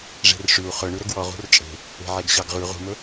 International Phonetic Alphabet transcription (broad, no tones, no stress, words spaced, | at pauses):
ʐe̤rʂyu̯ χɵ ɳʉɾɵɡwɔ ʁṳrt͡ʃʼe̤ | e̤ʕeɡɕɑɡʁʉ ʁṳmɵ